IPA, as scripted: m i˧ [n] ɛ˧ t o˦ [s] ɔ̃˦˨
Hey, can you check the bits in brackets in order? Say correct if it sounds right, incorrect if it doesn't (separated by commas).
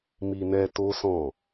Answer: correct, correct